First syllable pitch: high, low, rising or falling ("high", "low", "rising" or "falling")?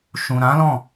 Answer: low